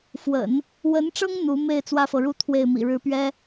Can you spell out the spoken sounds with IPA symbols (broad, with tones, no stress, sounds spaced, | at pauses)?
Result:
f w ə̰˨˩˦ n | w ə˧˥ n ʈ͡ʂ ɤ˥ ŋ n̪ u˧˥ m e˥˩ ɪ̯ t͡s w ä˥ f ɤ˨ ɻ u˥ t̪ʰ w e˥˩ ɪ̯ m ḭ˨˩ ɻ ɻ̩˧˥ p ɥ ɛ˥